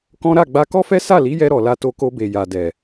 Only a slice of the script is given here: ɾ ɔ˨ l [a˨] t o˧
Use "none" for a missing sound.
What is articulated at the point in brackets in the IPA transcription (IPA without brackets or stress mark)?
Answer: a˧